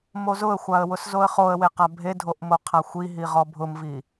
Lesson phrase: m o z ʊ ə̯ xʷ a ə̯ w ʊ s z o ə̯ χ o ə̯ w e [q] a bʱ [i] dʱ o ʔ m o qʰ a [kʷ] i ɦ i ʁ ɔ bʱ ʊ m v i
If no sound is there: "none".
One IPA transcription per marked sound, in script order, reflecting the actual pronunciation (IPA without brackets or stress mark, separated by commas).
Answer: q, e, xʷ